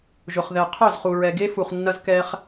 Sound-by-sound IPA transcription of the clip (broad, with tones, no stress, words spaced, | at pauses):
ʒʊ˨χðɛ˨ qʰœ˦˨zχu˨ɹɛ˨ɡe˦ fu˨χnːɐ˧z kɛ˦χ